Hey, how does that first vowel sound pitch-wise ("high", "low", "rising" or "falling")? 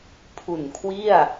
low